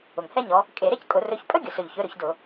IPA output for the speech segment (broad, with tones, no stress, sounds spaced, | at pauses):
ʊ˨˩ ŋ h ɛ˥ ɲ ɔ˨˦ | kʼ e˧˩˧ ɾ e˥ c kʼ ʊ˧˩˧ r ɵ˨˦ ç pʼ ɵ˥ ɡʲ ʊ˨˩ s ɵ˨˩ ʎ ç ɵ˨˦ ɾ ɵ˧˩˧ ç d ʊ˧˩˧